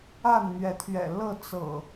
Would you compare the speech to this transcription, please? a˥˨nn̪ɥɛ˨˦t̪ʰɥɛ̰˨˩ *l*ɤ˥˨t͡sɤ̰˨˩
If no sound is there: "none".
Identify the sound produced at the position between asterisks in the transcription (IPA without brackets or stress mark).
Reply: l